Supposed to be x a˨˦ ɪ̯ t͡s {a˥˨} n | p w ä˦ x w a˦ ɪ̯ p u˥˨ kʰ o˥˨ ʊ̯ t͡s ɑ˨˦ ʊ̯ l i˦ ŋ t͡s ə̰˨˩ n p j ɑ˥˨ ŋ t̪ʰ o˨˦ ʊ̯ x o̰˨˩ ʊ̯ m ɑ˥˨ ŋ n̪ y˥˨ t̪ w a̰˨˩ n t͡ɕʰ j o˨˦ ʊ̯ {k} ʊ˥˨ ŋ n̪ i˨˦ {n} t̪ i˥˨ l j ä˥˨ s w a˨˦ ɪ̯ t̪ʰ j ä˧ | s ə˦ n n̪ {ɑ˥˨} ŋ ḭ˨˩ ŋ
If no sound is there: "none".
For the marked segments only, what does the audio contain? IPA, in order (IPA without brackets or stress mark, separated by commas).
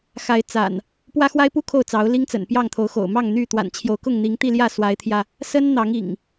a̰˨˩, k, ŋ, ɑ˨˦